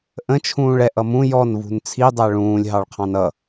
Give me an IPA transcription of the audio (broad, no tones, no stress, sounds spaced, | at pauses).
ʔ ə̃ t͡ʃʰ ũː ɭ ɛ ʔ ʌ m ũ j ɔ n v ṳ n t͡sʰ i dˤ æ ɭ ũː lʲ ɦ ɑ ɭ qʰ ɑ̃ n ʌ